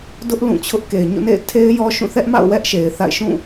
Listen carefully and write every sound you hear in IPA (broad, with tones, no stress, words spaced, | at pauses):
dʊ˦ʔ lũ˦˨t͡ɕʰʊ˦ʔ ke˨ɪ̯ɲo̰˦˨nḛ˦˨ɪ̯tʰe˦ɪ̯ jɔ˦ʃũ˦˨ θɛ˦ʔma̰˦˨ʊ̯ wɛ˦ʔʃe˨ɪ̯θa̰˦˨ɪ̯ʃũ˦˨